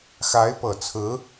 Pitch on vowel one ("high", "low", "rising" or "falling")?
rising